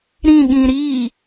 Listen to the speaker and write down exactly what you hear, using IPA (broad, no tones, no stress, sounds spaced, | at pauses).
ɾ ĩ ɠ ĩ ɾ iː